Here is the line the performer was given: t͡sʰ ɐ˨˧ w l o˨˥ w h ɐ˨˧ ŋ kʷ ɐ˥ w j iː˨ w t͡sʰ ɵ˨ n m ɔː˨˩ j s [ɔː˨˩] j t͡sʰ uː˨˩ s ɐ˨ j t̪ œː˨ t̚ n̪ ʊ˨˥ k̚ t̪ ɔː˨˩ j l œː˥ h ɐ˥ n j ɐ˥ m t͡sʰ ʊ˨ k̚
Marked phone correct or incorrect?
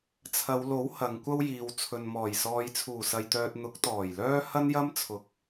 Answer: incorrect